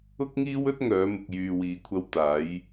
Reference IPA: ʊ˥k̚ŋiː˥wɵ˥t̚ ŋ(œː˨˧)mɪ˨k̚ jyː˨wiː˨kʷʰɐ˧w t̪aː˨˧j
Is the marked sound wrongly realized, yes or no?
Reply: no